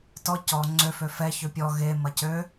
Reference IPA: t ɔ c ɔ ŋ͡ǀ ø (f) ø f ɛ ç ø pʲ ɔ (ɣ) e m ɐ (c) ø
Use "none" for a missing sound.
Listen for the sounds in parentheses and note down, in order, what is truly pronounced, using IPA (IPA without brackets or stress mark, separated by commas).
f, ɣ, c